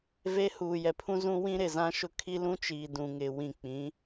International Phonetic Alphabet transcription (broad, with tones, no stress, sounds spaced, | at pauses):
v e˦ h uː˨ j ɛ˨ pʰ ũ˦ z ũ˦ w ĩ˦ ɾ ɪ˨ z ã˦ ʃ ʊ˦ kʰ i˦ l ũ˦ t͡ʃ iː˨ d ũ˨ ŋ ɪ˨ w ĩ˨ k͡p ĩ˨˦